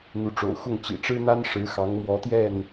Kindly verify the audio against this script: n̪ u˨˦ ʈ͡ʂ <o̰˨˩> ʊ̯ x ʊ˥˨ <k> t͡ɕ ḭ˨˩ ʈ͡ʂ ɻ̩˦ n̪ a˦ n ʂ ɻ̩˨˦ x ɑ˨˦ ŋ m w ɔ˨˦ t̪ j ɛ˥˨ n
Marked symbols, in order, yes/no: yes, no

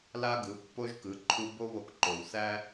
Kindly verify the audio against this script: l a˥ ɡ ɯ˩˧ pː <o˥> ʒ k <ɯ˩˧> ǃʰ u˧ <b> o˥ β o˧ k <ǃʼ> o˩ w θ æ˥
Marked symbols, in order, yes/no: yes, yes, yes, no

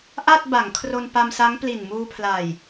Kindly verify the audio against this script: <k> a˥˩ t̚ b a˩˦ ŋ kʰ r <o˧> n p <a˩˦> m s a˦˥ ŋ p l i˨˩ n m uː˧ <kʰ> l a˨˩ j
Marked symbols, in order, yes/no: no, yes, no, no

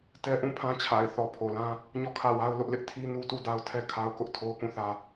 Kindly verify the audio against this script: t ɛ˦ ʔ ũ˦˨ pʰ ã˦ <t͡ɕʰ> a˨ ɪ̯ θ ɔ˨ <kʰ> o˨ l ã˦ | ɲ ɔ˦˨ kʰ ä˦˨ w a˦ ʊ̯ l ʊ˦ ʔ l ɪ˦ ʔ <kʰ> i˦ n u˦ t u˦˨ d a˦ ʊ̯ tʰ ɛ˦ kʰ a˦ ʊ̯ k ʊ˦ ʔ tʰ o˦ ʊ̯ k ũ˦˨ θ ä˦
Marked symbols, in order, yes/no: yes, no, no

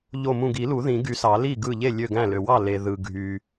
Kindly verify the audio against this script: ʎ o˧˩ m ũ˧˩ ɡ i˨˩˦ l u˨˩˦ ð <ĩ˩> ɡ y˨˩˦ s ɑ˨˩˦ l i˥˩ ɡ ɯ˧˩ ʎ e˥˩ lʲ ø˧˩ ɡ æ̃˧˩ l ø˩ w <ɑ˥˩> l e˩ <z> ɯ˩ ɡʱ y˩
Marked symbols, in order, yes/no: no, yes, no

